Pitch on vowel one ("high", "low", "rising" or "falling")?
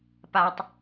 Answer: low